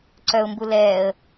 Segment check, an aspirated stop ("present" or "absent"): absent